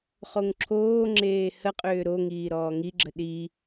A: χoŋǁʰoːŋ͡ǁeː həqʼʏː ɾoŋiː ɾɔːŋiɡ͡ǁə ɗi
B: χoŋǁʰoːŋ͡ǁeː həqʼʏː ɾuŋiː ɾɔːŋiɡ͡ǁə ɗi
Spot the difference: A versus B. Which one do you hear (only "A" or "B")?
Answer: A